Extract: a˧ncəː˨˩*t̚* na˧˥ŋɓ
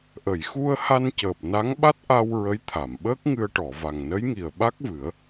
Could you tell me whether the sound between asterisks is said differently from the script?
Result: yes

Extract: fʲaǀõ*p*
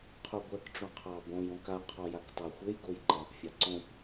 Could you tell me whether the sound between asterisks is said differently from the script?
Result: no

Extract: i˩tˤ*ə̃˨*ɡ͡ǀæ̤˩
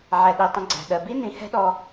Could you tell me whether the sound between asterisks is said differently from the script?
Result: no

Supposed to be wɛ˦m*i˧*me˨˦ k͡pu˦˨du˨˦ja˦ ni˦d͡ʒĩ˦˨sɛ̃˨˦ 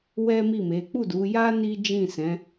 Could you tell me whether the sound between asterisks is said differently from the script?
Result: yes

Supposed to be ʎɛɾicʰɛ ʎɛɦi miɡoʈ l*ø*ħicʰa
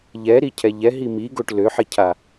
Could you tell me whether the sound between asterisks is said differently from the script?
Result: no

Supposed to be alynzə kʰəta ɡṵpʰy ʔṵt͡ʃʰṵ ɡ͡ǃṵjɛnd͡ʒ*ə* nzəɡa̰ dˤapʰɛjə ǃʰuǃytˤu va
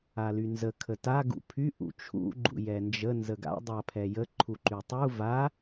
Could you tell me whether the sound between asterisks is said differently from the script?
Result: no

